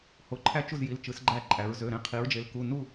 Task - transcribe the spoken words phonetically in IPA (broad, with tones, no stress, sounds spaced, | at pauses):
h o˧˩ ǃʰ æ˥˨ t͡ʃ u˥˨ z j i˩˧˩ l t͡ʃ ɯ˩˧ s ɡ͡ǃ æ˧˩ ǃʼ æ˩˧ ɹ z ø˩˧˩ ɾ ẽ˥˨ qʰ i˩˧ ɹ d͡ʒ e˩˧ l k u˩˧˩ n u˥˨